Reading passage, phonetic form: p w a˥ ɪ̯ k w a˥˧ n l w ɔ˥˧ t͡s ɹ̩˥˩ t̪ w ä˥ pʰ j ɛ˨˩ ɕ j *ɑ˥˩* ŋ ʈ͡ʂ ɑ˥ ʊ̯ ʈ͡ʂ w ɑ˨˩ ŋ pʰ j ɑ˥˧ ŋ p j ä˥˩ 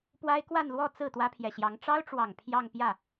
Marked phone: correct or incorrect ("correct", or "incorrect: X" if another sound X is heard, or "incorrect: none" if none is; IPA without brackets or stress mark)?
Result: incorrect: ɑ˧˥